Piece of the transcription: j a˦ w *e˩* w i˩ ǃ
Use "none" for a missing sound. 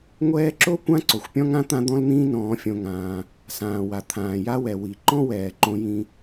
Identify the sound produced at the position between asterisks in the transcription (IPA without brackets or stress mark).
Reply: ɛ˩